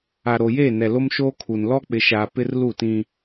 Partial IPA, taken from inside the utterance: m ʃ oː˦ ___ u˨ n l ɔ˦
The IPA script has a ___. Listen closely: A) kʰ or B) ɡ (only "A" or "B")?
A